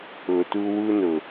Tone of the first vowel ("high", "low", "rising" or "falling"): low